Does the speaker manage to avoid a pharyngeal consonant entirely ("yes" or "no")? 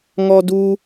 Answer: yes